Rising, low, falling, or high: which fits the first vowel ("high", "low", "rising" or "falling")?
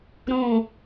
falling